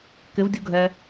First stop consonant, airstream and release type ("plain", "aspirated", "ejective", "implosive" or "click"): plain